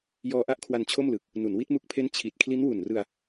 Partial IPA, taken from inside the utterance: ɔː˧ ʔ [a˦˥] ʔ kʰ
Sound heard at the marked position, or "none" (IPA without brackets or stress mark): a˦˥